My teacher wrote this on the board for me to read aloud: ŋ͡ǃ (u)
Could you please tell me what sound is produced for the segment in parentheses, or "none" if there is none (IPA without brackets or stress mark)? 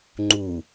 u